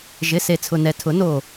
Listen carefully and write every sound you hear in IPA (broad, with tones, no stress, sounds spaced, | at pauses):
ʒ ɪ˩˧˩ s e˧˩ t͡sʰ ʊ˧˩ n ɛ˧˩ tʰ ʊ˨˩˦ n o˧˩